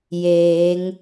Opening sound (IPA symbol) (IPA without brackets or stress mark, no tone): j